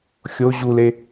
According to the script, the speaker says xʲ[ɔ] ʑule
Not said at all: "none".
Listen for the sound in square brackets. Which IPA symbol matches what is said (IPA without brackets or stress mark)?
o